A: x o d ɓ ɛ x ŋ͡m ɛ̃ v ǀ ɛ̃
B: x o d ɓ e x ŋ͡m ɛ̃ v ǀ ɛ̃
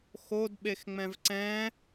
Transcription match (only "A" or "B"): B